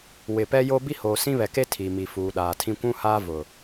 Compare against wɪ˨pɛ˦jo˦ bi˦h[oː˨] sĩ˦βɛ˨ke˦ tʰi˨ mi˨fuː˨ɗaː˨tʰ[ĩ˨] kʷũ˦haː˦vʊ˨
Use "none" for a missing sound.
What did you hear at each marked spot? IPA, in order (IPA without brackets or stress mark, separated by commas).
oː˨, ĩ˦